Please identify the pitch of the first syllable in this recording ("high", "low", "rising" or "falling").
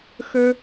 high